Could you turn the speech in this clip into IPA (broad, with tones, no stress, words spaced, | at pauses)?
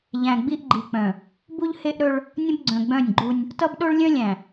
ʎæ̃˨ɡ͡bi˦ʔɡ͡ǃi˨k͡pœ̃˨ | bu˦ʎhe˦ʔɾɵ˦ɭ | nʲə̃˦bɡ͡ǀœ̃˨ɡ͡bœ̃˦˨nʲ ɡ͡ǃu˦nʲ | tʌ˦bɗo˦ɭlʲœ̃˦ lʲæ̃˨